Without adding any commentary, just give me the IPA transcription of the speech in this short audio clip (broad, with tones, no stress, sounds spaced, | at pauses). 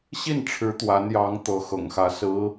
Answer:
ɕ i˥˩ n ʈ͡ʂʰ ɻ̩˧˥ t̪ w a˧˥ n j ɑ˧˥ ŋ t̪ ɤ˧˥ x ɤ̰˨˩ ŋ x ä˧˥ s ɹ̩˧˥